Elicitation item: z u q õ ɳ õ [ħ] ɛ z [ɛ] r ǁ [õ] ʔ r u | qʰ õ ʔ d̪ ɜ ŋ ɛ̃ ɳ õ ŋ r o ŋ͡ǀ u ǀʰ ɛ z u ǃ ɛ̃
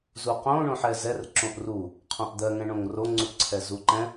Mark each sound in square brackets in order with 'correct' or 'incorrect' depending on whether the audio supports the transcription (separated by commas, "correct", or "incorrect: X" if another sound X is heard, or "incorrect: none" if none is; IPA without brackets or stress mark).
correct, correct, correct